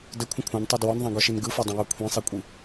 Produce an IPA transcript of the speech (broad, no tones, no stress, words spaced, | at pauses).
dəkʷʰə̃ kʷʰãntˤa dwɔnðˤãɡɔʃin ɡɯfɔdˤĩjɔ kʷʰĩsˤikʷʼi